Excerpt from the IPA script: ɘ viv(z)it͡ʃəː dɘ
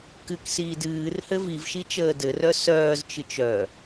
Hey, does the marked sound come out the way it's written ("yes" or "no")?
no